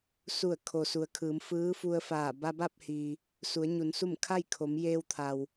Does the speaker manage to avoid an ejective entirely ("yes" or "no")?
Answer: yes